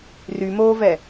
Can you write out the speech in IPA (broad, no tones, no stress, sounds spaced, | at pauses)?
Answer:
r y m oː v ɛ